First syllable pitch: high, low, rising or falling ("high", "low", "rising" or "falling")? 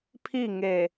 falling